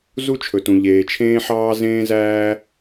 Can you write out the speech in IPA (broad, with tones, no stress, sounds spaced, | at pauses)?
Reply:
z u˥ t͡ʃʰ ɵ˩ t ũ˩ ʎ eː˩ t͡ʃʰ ẽː˥ ħ ɑː˥ z ẽː˥ z æː˥